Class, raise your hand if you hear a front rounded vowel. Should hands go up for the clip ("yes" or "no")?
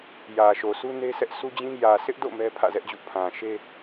no